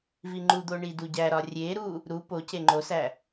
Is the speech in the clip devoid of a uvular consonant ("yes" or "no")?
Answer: yes